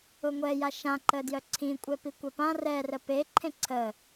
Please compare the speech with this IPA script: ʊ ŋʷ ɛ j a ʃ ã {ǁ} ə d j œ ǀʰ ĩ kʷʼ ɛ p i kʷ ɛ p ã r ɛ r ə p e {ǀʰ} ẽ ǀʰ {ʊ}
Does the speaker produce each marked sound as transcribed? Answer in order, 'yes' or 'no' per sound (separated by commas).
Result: no, no, no